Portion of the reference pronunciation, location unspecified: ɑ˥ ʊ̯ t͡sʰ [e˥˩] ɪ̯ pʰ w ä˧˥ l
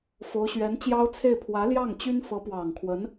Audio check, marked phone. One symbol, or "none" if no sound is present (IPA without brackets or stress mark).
e˥˩